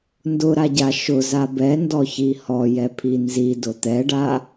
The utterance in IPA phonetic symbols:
n d ʊ ɾ a ɟ a ʃ ʊ z a b ɛ n d ɔ ç i h ɔ j ɛ pʰ i n z i d ʊ t̪ ɛ ɖ a

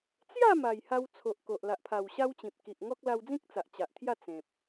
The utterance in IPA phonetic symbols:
t͡s j a˥˧ m a˨˩ j h a˧ w t͡sʰ o˨ ʔ k o˨ ʔ l a˨ ʔ pʰ a˨˩ w ɕ a˦ w t͡ɕ ĩ˨ p̚ k i˨ ʔ ŋ ɔ˦ k̚ l a˧ w d͡z ĩ˦ k̚ t͡s a˨ ʔ t͡ɕ a˨ ʔ t̪ʰ j a˥˧ t͡s ẽ˨ p̚

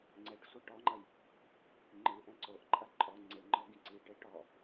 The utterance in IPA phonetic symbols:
ŋ͡ǀ ɛ ʈ sʷ ɐ ʈ ɔ ŋ͡ǃ ɐ j | ŋ͡ǃ ɨ ʔ ɛ̃ ǀ o ʔ ǃʼ ɐ ǃʼ ɔ ŋ͡ǀ e ŋ͡ǃ ɔ ɡ ĩ ǀ i ʈ e ʈ ɔ

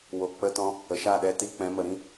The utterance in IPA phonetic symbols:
w o˨ k͡p ə˧ t ɔ̃˧ | ə˨ ʃ a˦˨ ɗ ɛ˧ t i˧ k͡p ɛ̃˨˦ m ə˨ ɾ ĩ˦

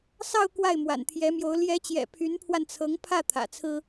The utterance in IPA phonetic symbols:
s ɑ˥˧ ʊ̯ k w a˥˩ ɪ̯ m w a̰˨˩ n t̪ʰ j ɛ˧˥ m j o˧˥ ʊ̯ l j ɛ˧˥ t͡ɕ j ɛ̰˨˩ pʰ y˧˥ n pʰ w a˧ n t͡sʰ ɤ˧˥ ŋ pʰ ä˥˩ t̪ʰ ä̰˨˩ t͡sʰ ɹ̩˥

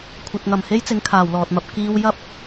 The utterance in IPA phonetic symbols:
kʷʰ ɐ˧ t̚ ŋ ɐ˨ m h e˥ j t͡s ɪ˨˥ ŋ kʰ aː˨˩ w l ɔː˨ t̚ m ɐ˧ p̚ k iː˥ w j ɐ˥ p̚

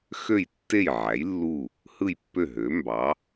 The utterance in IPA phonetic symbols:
x ø˥˩ j tː e˥˩ j ʕ æ˩˥ j lː u˥˩ | h ɯ˥˩ j pː ø˥˩ ɦ ø˩˥ m b ɑ˩˥

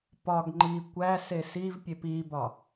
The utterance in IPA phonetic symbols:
p ɒ ɡ ŋ͡ǃ i kʷ æ s e s i v pʲ e p i b ɒ

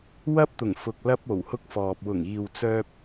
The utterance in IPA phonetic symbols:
w ɐ˥ p̚ t̪ ʊ˨˩ ŋ f ʊ˨ k̚ l ɐ˥ p̚ o˨˩ w h ʊ˥ k̚ f ɔː˨ p̚ w ʊ˨˩ ŋ iː˨ w t͡s œː˧ p̚

